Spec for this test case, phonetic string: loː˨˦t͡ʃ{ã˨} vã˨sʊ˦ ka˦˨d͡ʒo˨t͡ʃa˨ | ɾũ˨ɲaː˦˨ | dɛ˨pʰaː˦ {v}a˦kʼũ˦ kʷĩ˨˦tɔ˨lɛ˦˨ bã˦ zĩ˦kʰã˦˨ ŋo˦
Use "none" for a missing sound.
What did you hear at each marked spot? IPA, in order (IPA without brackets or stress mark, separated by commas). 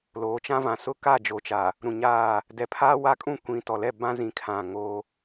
ã˦, w